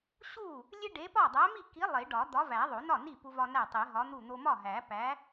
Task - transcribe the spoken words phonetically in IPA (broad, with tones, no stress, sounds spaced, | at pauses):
ɕ u˥˩ | lʲ e˦ ɖ e˨˥ p ɒ˥˩ dˤ æ˨˥ m i˥˩ k i˨˥ lˠ e˨˩˦ ɖ ɒ˨˩˦ d̪ ɒ˨˥ v æ˨˩˦ ðˤ o˨˩˦ n ɒ˥˩ n i˥˩ p u˦ v ɒ˦ n æ˥˩ tˤ e˨˩˦ ɦ ɒ˨˥ n̪ u˥˩ n̪ o˦ m ɒ˥˩ ɦ æ˨˩˦ p æ˨˥